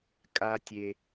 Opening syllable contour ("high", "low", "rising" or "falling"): high